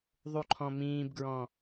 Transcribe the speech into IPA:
ðˤuǃʰɔ̃mĩːbɡɹɔ̃

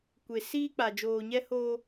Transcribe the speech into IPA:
kʷe˨ siː˦k͡pa˨ d͡ʒoː˨ɲɛ˦hoː˦

